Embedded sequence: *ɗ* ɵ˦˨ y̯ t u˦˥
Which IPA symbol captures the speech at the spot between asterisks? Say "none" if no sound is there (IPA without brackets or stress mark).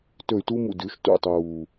t